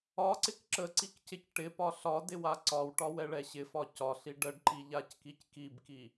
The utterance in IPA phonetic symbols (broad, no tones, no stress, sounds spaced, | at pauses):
ɒ ǀ ɪ k ǁ ə ǀ i k c ɪ c ʈ ɪ p ɒ ɬ ɒ d ɪ w a ǀ ɒ w ʈ ɒ w ɛ ɭ ɛ ɕ ɪ f ɒ c ɒ ɬ i ɖ ə ɖ ǃ i ʎ a c k i c k i b k i